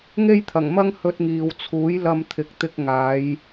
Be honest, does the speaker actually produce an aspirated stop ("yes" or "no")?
yes